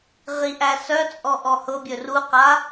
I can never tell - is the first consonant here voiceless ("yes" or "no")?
no